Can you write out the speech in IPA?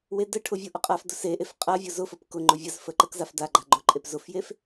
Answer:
w e d ə ʈʰ ʊ vʲ ʊ ʔ ə qʼ a f d ʊ s e ʔ e f qʼ a vʲ ʊ z ʊ f ə p k ʊ ŋ͡ǃ ʊ vʲ ə z f ə ǃ ə k z a f d a ɡ͡ǃ a ɡ͡ǃ ʊ ǃʼ e p z ʊ f j e f

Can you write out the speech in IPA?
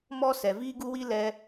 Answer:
m ɔ˦ s ɛ˨ v iː˦ ɡ u˦ w i˦ l ɛ˦

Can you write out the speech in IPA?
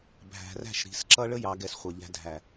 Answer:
bʱ æ̤˨ r æ̤˦˨ ʃ ɾ i̤˨ s ǁ ʌ˦ ɭ ə˦ j ɑ˨˦ ɡ ɛ˨ s χʷ ʌ˨ ʎ æ̤˦ dʱ æ˨

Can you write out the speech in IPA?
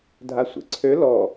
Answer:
dʱ a sʷ ḛ ǀʰ ø l ɔ

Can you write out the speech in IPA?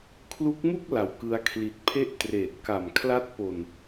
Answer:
kʰ l u˦˥ k̚ m u˥˩ k̚ l a˨˩ w k ɯ˦˥ a̯ kʰ l i˨˩ t̚ pʰ e˥˩ ʔ t r eː˨˩ t̚ k a˨˩ m kʰ l a˦˥ t̚ p o˨˩ n

